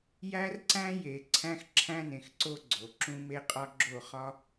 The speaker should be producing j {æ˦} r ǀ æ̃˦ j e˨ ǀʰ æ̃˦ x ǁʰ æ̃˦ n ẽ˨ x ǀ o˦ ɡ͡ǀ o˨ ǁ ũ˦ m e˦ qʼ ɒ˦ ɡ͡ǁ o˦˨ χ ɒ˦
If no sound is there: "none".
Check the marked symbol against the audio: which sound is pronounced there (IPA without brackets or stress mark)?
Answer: æ˦